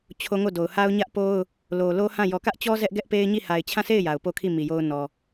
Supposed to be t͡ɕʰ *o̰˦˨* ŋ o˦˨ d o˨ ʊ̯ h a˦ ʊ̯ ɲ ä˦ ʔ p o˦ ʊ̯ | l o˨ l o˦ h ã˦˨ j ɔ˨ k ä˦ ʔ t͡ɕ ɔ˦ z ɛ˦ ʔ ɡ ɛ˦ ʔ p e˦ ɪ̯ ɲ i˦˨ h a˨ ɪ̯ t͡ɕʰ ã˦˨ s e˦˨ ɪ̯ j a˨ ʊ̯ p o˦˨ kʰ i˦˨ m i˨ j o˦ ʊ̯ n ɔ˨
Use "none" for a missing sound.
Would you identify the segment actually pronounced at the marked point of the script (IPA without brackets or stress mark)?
o˦